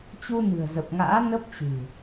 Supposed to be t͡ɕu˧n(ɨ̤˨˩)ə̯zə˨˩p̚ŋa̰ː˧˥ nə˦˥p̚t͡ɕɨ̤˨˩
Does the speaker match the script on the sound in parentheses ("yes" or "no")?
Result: yes